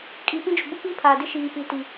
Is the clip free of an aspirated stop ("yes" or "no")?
no